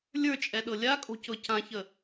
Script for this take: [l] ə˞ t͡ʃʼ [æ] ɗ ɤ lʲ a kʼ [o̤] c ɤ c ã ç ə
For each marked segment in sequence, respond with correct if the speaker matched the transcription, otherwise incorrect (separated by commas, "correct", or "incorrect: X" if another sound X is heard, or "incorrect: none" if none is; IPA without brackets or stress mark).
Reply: incorrect: lʲ, incorrect: ɛ, correct